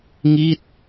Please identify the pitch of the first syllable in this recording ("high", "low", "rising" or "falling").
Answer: falling